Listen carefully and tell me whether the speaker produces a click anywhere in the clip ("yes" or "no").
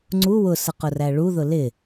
yes